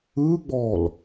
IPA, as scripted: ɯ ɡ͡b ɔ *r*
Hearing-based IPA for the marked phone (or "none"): l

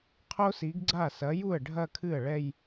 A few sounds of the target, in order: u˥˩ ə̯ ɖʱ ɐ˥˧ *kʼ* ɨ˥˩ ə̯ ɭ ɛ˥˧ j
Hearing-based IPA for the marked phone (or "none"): kʰ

